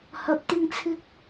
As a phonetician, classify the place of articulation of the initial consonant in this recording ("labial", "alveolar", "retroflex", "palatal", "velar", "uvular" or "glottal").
glottal